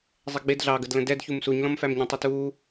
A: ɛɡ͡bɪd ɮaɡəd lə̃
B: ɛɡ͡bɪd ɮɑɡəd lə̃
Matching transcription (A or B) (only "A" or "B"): B